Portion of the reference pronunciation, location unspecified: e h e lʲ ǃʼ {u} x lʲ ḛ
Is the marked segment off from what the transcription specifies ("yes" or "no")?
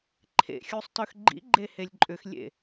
yes